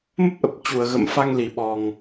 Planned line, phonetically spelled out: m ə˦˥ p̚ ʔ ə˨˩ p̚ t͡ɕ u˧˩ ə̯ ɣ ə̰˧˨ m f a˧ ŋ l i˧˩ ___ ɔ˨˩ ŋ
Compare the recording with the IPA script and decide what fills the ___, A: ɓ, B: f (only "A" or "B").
A